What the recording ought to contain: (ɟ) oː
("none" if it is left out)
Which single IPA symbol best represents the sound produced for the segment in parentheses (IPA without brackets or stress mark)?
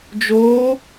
d͡ʒ